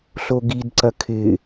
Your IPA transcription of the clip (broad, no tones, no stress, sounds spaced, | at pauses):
ɬ o ɡ i d ǀ ɐ kʰ ɪ